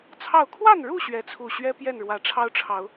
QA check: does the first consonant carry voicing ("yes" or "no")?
no